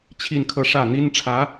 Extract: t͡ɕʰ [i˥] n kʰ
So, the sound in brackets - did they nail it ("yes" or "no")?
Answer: no